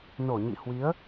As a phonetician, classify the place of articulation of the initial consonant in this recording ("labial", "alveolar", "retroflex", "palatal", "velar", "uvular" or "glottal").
alveolar